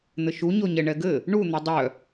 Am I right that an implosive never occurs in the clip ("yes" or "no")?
yes